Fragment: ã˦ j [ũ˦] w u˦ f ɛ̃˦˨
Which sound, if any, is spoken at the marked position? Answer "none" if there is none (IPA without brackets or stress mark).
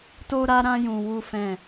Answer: ũ˧